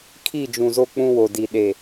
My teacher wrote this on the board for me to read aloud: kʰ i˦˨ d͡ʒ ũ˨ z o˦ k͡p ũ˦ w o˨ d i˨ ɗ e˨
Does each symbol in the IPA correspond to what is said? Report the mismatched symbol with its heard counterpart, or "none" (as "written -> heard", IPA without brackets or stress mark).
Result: none